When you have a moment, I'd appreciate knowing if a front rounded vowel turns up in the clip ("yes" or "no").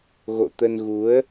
no